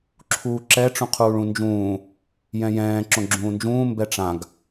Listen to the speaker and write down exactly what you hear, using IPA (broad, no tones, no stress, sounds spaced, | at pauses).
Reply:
ǁʰ uː ǁ ɛ ʈ͡ʂ ũ qʰ uː ɭ ũ n d͡ʒ ũː | j ɛ̃ j ɛ̃ː ǁ õ ɡ͡ǁ ũː n d͡ʒ ũː m b ɛ ʈ͡ʂ ã ɡ